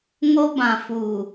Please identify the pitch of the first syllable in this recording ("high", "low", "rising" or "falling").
high